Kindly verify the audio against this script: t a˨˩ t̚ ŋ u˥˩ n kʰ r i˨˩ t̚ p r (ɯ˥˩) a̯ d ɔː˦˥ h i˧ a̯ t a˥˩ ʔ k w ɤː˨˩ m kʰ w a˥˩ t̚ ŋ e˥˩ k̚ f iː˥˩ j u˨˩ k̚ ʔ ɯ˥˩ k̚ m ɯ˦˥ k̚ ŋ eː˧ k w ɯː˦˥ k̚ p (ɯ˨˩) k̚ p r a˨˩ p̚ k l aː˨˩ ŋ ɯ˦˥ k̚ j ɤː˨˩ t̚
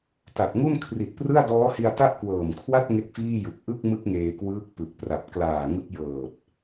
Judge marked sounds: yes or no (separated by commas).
yes, yes